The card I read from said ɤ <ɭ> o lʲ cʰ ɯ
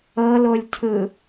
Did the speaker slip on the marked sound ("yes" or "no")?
yes